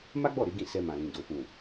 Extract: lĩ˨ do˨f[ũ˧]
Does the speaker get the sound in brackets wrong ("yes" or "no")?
yes